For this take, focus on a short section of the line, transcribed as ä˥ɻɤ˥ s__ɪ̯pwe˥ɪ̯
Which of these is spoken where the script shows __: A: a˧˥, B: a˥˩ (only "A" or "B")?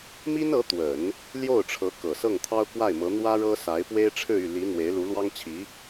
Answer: A